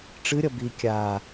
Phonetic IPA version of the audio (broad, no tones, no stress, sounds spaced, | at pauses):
ʈ͡ʂ ɨ ɾʲ ʌ b i kʲ a